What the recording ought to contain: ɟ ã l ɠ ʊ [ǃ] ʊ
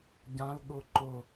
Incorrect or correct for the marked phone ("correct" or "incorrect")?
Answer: correct